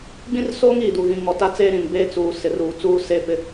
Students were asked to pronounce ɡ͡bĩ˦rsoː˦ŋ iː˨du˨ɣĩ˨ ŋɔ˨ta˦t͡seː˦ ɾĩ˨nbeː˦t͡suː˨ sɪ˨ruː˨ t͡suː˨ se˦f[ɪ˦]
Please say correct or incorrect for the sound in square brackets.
correct